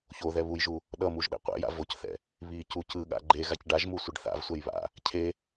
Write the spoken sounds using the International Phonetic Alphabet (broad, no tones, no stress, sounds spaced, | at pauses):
ç o ð ɛ β u j ʒ u | ɗ ʌ m u ʒ ɗ ɛ̰ qʷ ɛ̰ j a̰ v o c θ ɛ̰ | β i c u c ɯ ɠ a̰ ɡ͡ǃ e ɣ a c ɖ a ʒ m u sʷ ɯ ɖ θ a̰ v sʷ ɛ j β a̰ | cʰ e